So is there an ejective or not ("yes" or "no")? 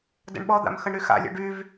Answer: no